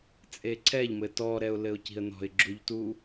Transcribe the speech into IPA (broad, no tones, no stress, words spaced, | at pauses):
t͡sʼeǀʰɛʎmɘ tɔɾɛʊ̯lɘʊ̯ ci̤ə̯nɔ̤ɪ̯ɡ͡ǁuʎtu